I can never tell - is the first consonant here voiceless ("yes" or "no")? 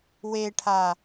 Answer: no